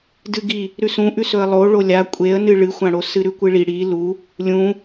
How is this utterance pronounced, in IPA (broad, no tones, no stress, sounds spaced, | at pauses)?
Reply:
d ɨ ɡ i | ɾ ʉ s ũ ʔ ʉ s ɵ ə̯ lˠ o ɭ o lʲ a kʷʼ e ə̯ n ɨ ɭ ɨ xʷ ã ɽ o s ɨ ɾ ʉ kʷ ɨ ɭ i ɽ i l u | lʲ ũ